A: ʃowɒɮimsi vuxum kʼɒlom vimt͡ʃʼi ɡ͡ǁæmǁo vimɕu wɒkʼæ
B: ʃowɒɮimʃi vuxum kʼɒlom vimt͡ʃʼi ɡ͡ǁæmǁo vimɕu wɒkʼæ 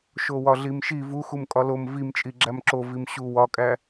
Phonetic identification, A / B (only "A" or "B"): B